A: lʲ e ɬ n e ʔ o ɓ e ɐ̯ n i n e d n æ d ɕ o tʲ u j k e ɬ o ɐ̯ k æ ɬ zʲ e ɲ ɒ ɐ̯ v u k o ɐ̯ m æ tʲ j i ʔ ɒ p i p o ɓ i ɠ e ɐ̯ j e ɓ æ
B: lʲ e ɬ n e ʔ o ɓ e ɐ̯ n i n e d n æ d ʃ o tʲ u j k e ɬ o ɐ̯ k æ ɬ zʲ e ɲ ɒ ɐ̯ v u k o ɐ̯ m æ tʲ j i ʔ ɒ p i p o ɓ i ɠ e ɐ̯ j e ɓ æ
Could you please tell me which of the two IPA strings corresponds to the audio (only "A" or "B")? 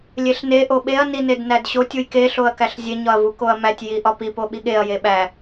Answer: A